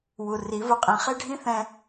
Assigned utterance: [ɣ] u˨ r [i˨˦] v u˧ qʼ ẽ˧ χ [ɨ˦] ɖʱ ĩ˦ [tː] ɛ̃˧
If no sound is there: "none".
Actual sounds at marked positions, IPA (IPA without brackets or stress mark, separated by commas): w, i˨˦, e˦, θ